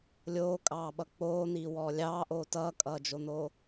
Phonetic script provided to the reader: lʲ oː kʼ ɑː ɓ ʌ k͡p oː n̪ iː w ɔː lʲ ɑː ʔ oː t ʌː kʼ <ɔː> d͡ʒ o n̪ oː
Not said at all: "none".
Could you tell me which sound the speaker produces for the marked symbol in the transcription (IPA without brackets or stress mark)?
ʌː